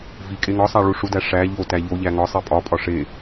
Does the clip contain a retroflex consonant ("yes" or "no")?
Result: yes